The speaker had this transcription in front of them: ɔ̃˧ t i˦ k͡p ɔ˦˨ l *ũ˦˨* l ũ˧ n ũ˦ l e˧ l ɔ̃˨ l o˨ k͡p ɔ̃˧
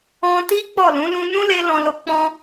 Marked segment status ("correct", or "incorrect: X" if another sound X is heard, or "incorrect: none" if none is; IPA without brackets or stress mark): incorrect: ũ˨˦